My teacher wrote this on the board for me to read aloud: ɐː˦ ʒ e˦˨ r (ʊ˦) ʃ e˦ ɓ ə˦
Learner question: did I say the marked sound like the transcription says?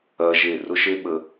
yes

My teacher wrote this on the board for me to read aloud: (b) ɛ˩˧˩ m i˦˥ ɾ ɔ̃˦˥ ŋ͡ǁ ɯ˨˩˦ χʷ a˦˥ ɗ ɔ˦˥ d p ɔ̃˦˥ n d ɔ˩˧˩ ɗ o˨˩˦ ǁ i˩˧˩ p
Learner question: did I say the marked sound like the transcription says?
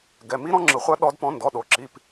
no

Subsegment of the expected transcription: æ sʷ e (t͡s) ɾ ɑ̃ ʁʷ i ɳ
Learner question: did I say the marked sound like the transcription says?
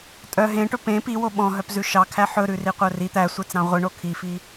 yes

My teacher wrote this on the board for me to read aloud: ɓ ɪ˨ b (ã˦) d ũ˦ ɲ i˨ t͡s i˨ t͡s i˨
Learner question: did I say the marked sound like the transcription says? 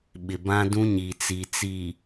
yes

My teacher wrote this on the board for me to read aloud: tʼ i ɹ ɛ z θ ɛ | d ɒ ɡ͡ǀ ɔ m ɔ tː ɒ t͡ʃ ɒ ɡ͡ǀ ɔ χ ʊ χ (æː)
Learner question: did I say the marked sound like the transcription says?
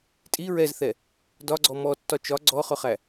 no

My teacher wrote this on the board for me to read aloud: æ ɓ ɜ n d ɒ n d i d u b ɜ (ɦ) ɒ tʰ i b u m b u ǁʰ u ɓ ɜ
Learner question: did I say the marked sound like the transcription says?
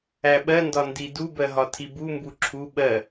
yes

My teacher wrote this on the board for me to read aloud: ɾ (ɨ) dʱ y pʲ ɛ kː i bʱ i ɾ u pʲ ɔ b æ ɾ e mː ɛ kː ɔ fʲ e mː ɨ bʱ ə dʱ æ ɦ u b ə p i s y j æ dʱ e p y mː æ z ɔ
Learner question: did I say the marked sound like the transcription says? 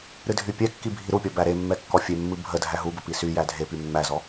yes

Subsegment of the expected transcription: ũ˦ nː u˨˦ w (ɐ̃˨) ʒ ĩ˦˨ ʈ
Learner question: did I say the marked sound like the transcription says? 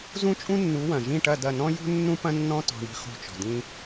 yes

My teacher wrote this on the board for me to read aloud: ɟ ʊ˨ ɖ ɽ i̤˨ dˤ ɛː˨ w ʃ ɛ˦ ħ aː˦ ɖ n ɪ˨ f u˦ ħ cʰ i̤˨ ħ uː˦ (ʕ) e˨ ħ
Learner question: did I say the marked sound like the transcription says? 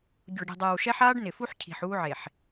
yes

